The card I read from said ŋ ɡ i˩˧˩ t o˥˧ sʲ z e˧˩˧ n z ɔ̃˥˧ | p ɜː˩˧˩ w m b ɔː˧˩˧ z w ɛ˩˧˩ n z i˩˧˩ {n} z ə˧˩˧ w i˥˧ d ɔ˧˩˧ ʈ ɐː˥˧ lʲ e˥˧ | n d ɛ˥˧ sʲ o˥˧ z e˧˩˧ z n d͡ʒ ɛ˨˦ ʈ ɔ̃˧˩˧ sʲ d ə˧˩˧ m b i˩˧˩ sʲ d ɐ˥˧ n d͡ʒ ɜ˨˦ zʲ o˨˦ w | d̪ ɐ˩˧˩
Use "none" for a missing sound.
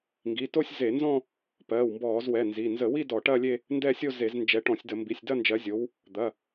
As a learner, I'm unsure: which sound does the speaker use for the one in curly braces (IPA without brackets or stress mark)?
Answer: n